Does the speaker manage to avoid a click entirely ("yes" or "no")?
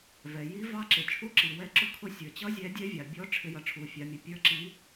no